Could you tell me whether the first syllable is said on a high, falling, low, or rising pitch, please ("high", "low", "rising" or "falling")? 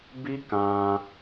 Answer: high